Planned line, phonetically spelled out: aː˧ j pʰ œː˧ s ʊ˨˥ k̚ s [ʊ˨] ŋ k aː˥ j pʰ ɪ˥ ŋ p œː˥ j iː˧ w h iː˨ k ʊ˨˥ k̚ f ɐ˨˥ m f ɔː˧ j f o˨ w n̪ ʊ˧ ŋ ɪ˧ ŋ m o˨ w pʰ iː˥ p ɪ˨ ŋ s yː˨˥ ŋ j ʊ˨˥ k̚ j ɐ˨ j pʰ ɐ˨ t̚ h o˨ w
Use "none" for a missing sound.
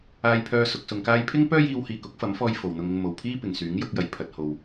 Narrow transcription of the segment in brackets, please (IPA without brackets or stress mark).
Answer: ʊ˧